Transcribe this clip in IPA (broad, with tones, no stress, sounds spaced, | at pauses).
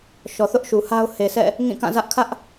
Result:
ʃ ɔ˨ θ ʊ˦ ʔ ʃ u˨ h a˦ ʊ̯ h e˨ sʰ ɛ̰˦˨ | ŋ ĩ˦˨ k ã˦˨ z ä˦ ʔ kʰ ä˦ ʔ